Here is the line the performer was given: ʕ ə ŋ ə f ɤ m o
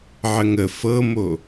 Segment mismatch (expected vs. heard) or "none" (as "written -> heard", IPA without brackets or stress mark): none